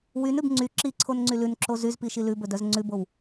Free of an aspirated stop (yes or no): no